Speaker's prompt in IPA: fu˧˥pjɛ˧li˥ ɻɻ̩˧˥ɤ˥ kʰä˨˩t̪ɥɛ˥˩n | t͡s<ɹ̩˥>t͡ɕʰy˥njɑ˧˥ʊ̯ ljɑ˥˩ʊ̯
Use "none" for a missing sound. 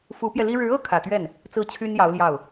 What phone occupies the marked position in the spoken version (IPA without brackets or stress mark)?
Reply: ɹ̩˥˩